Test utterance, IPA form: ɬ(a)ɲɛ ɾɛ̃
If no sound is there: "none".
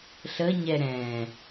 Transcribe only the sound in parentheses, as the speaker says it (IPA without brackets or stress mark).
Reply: ə